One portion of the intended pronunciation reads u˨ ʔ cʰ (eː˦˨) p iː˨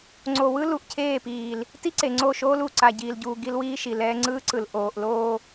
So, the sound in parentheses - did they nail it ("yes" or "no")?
yes